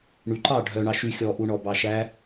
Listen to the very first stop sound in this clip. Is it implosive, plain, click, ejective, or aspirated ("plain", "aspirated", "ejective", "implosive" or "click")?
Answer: click